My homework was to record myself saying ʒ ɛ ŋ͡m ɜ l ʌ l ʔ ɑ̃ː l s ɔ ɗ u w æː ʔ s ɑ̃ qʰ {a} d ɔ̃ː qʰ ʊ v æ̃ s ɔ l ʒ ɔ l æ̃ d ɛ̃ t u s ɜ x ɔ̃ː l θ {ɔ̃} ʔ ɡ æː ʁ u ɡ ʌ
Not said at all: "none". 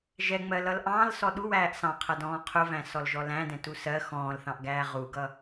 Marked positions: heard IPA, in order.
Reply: ʌ, ɑ̃

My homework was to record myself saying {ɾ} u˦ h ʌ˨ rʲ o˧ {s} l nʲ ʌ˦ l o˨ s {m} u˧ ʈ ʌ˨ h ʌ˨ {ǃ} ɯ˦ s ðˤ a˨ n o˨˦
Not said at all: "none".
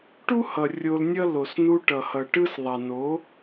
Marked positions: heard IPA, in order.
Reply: ʈ, none, n, ʈ

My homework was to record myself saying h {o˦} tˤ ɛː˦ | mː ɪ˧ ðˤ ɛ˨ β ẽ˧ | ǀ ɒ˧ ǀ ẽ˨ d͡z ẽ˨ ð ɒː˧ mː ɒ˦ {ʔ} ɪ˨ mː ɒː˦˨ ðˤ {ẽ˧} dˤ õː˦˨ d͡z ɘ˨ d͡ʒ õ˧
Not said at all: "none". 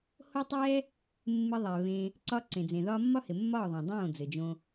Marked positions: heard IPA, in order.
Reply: o˦, h, ẽ˨

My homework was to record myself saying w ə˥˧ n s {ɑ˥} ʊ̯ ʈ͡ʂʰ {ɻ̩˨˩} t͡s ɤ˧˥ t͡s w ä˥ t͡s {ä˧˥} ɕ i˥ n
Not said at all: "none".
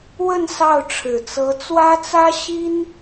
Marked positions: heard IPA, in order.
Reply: ɑ˥˩, ɻ̩˨˩, ä˥

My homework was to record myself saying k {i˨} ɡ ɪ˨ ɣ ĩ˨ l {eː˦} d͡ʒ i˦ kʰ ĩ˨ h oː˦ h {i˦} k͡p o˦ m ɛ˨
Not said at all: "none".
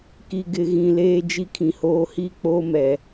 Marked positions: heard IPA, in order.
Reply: i˨, eː˦, i˦

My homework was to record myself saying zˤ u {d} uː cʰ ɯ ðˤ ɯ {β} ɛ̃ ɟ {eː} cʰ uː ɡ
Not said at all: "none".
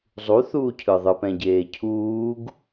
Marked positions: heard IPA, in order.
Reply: θ, p, eː

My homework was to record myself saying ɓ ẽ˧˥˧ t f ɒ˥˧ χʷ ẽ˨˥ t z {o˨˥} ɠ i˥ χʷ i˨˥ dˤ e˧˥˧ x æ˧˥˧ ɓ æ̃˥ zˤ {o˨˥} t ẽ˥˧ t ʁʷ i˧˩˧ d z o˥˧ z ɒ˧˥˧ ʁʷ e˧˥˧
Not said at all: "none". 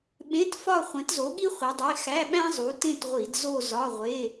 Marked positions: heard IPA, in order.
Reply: o˨˥, u˨˥

